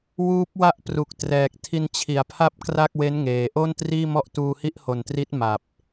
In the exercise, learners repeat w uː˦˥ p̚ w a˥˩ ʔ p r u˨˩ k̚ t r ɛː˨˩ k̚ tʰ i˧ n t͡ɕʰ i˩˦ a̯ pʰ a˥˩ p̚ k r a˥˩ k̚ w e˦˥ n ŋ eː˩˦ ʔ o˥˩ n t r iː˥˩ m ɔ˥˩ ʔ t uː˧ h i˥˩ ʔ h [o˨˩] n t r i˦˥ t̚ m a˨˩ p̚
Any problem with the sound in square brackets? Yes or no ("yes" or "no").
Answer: no